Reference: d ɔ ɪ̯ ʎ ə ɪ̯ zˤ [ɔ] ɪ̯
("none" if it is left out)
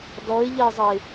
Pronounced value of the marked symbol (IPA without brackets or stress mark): ə